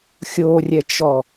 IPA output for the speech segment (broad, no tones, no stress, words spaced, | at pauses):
xʲorʲɛt͡ʃɔ